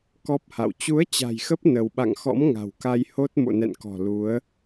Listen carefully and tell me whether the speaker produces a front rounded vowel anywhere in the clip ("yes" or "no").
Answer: no